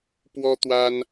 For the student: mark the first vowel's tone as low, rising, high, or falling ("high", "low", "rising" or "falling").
high